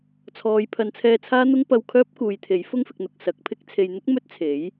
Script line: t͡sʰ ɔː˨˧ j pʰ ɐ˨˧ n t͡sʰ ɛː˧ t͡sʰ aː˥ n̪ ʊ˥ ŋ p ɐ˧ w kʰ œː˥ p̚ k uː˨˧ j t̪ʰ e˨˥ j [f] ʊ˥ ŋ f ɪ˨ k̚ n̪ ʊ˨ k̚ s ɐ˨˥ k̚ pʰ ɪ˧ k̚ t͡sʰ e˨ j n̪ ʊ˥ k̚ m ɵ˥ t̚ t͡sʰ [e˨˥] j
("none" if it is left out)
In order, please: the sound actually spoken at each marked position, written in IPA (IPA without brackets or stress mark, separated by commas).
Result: f, e˨˥